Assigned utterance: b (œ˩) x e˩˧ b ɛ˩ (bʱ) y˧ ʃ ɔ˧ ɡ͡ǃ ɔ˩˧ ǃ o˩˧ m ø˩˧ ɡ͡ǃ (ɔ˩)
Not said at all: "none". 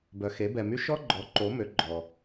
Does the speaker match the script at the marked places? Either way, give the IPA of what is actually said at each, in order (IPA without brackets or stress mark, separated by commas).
œ˩, m, ɔ˩